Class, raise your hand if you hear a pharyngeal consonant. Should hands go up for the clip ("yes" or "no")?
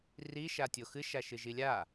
no